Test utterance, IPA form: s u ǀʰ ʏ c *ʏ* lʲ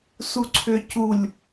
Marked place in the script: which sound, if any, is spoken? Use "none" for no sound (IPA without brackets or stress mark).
u